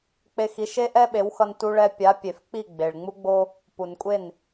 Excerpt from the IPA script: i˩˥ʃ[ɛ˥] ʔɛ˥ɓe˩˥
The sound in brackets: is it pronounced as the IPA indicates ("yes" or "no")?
no